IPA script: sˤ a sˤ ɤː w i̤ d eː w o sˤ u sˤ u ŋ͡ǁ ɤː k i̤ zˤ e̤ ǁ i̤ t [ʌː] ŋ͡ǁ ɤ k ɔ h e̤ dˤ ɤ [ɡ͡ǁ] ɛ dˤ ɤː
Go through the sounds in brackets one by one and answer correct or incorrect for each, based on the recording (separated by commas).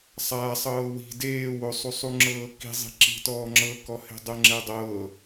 incorrect, incorrect